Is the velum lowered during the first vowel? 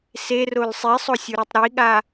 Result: no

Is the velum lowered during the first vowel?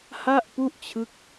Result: no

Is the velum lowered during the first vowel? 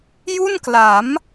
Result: no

